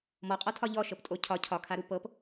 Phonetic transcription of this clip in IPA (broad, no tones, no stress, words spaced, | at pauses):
mɔqʼɔtʰɒ ʎɔʃɤptʼo cʰɒ cʰɒkʰaɾu pɤp